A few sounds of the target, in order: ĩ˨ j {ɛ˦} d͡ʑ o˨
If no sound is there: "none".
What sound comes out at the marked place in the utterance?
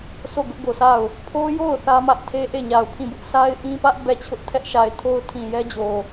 ɛ˦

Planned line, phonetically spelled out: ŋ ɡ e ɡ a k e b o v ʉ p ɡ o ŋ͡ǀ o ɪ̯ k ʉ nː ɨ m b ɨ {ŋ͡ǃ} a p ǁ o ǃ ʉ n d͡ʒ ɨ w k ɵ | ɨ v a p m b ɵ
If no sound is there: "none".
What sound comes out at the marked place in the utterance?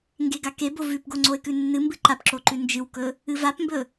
ǃ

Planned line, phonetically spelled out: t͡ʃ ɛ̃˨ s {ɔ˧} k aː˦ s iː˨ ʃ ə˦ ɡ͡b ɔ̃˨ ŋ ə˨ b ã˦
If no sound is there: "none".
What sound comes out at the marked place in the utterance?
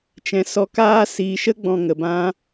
ɔ˧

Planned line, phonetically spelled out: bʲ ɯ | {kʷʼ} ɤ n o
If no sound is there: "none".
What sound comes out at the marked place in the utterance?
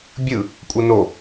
kʷʼ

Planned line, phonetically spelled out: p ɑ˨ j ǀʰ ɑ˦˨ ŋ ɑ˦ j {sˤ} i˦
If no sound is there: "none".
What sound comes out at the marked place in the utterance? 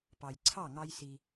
s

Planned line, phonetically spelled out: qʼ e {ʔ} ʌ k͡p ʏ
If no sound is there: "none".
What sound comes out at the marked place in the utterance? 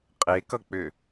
k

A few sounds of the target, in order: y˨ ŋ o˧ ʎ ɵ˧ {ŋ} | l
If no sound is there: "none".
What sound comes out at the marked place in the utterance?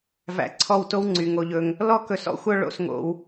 ŋ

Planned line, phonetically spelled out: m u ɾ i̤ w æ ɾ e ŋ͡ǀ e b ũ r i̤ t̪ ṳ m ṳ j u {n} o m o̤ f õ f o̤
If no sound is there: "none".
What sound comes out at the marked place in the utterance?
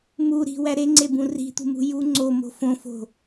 ŋ͡ǀ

